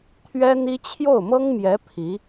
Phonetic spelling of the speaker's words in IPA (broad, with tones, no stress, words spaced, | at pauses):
t̪ʰɥɛ˥n̪i˥ t͡ɕʰjo˥˩ʊ̯mɤ˥ŋmjɛ˧˥ pʰi˧˥